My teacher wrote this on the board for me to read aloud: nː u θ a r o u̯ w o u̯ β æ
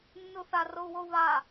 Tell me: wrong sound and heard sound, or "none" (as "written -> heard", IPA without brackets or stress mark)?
æ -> a